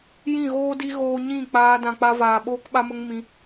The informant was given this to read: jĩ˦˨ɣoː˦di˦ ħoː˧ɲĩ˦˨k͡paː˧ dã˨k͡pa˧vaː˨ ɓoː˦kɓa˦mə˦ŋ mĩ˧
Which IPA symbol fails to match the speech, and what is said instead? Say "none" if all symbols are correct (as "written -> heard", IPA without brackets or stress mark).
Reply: ħ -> ɣ